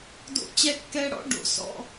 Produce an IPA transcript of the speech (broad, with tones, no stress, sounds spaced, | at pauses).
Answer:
d o̰˦˥ t͡ɕ ɛ˦˥ kː ɛ˦˥ ɽ ɔ̰˦˥ ɖ o̰˨˩˦ s ɔ̰˧˥˧